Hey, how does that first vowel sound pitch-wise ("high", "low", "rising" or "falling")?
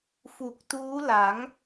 low